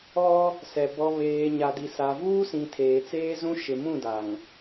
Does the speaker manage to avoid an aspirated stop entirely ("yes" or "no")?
no